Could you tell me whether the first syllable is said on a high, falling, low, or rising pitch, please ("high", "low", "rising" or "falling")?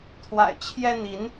low